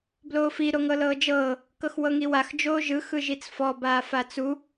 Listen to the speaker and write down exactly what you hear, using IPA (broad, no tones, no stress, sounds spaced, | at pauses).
b l oː f i ɾ o ŋ ɤ l ɤː d͡ʒ ɤː | k ɤ x w ɤ ŋ i w a x d͡ʒ oː ʒ ɯ x ɯ ʒ i t͡s f ɔ b aː f a t͡s u